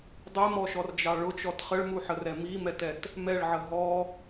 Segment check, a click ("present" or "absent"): absent